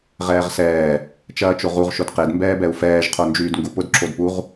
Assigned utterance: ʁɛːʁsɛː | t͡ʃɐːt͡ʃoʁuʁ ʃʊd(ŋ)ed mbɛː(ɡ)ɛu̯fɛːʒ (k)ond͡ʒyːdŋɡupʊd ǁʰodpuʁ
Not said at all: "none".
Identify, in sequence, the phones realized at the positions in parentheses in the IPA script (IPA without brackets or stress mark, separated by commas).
q, b, qʰ